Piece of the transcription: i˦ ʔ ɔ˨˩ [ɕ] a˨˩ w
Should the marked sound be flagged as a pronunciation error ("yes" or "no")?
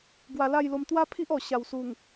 no